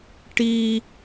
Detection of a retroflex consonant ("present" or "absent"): present